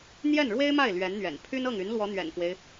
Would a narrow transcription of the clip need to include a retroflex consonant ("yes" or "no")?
yes